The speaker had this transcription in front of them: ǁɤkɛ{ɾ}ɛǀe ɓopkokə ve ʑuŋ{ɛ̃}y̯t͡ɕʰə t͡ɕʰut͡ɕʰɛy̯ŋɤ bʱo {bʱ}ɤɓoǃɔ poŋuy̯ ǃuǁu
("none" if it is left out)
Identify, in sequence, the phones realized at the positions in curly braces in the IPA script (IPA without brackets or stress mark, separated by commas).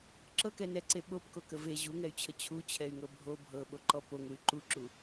n, ɛ, bʱ